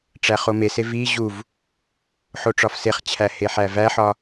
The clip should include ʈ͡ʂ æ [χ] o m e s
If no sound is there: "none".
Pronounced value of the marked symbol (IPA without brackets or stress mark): χ